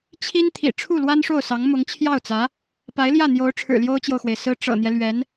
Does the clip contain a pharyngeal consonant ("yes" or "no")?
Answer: no